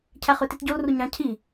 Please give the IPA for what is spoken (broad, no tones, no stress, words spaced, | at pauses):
cʰæχøtitɟol ruɲɑ̃ cʰi